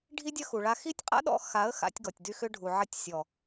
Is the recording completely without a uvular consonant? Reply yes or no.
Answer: no